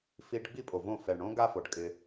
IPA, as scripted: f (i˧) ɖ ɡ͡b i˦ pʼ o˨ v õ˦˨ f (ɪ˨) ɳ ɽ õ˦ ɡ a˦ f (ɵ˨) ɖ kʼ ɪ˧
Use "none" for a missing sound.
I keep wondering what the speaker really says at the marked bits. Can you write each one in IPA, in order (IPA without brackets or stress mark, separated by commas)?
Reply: i˧, ɛ˨, o˨